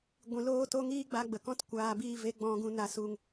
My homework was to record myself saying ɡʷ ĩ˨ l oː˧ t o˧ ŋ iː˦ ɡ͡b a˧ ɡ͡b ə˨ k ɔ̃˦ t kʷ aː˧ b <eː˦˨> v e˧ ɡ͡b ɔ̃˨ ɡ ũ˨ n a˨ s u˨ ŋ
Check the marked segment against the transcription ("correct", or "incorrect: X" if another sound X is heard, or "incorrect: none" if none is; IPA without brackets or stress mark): incorrect: iː˦˨